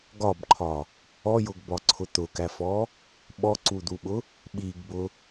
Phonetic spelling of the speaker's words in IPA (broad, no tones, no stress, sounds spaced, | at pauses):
ɡ ɒ b ǃʰ ɒ | ɔ j ʊ ɡ b ɒ ǀʰ ʊ t̪ ʊ k æ f ɔ | ɓ ɔ ǀ u d̪ u ɓ ʊ | ɓ i ɡ b ʊ